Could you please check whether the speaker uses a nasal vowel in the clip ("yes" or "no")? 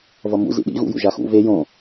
yes